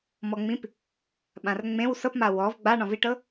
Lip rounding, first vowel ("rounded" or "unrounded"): rounded